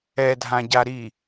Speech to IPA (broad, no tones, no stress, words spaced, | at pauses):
ɛdʱãɟa ɾi